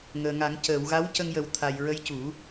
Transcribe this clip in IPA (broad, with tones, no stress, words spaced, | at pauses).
ŋəː˨˩ŋa˨˩˦ŋ cəː˨˩˨wɣa˧˥wcə˧ŋjə˨˩˦w t̪ʰa˨˩j ɹə˧˥jcu˨˩˦